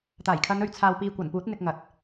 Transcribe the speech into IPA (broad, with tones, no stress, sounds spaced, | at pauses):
t̪ aː˨˩ j kʰ ɐ˨˧ n ɵ˨ ɥ t͡sʰ aː˨ w p iː˨ kʷ ɐ˨˩ n p uː˨˥ t̚ n̪ ɪ˧ k̚ ŋ ɐ˨ t̚